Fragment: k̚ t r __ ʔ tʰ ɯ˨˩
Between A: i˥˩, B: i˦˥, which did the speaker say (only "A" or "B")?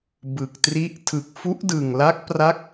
B